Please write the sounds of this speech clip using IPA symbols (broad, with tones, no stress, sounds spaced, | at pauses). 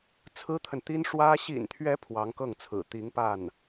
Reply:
t͡sʰ ɹ̩˥ t̪ʰ ə˨ n t̪ i˥ n ʂ w ä˥ ɕ ḭ˨˩ n t̪ʰ ɥ ɛ˧˥ pʰ w ɑ˧˥ ŋ k ɤ˥˩ ŋ t͡sʰ ɹ̩˨˩ t̪ i˧˥ ŋ p a˥˩ n